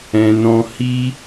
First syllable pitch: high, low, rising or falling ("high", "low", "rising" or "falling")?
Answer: low